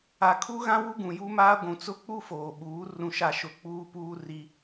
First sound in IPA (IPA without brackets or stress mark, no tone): a